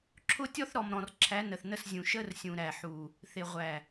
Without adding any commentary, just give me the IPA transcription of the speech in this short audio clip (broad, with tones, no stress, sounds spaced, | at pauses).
ǁʰ ʊ˦ tʲ ɔ˦ θ ɾ ɔ˨ m ɾ ɔ̃˨ r ǁʰ æ˨˦ n ə˨ θ n ə˦˨ s zʲ ũ˨ ʃ ə˦ r sʲ ũ˨ ɾ æ˨ ħ u˨ | θ ɪ˨ ʁʷ æ˨